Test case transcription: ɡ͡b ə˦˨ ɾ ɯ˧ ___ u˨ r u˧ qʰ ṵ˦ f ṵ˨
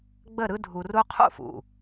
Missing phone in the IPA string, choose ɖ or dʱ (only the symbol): dʱ